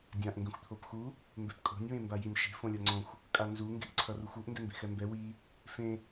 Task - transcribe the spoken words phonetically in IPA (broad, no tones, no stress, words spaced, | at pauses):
dʲãʔ ŋɡẽxʷt̪ʰopxu | mbɛpkʼo̤nʲ wẽmbajinʲʃe̤ fõlʲʌŋ͡ǀõxʷ | kʼanzu ŋɡe̤ʔǀʰʌruxʷoʔ ndɛmbe̤xɛmbɛ wi | fẽ